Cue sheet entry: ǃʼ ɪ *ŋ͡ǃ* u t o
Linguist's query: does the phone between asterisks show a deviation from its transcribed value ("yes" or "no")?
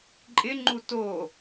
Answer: no